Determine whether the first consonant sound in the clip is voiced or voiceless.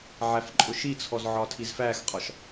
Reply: voiced